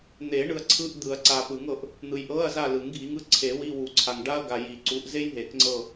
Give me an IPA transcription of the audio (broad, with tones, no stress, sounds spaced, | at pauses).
n̪ e˨˩˦ ɳ ɯ˨ ɐ̯ ǀʰ ɯ˧˥˧ ʔ d̪ ɯ˨˩˦ ɐ̯ ǀ a˨ p ɯ˨˩˦ ŋ ɤ˨˩˦ ʔ | n̪ ɯ˨ j ʔ ɤ˧˥˧ ɐ̯ z a˦˨ l ɯ˨˩˦ ŋ ɡʱ i˨˦ ŋ ɯ˨˦ ǀʰ e˨˩˦ w i˧˥˧ w u˨˩˦ ǀʰ a˨ ŋ ɖ a˥ ɐ̯ ɡ a˨ j i˨˩˦ ǀ u˨˦ ʔ z e˥ j ɦ e˨˩˦ k ŋ͡ǀ ɤ˦˨